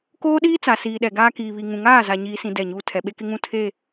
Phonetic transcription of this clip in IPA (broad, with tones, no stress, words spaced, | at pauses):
koː˦ɗiː˦t͡sa˨ siː˨ɗɛ˨ɡaː˦ kiː˨βi˨ ŋũ˨ŋaː˦˨za˨ ɲiː˦sĩ˦ dɛ˦˨ɲuː˦ tʰɛ˨ɓe˦kɪ˦ŋũ˦˨ tʰe˦˨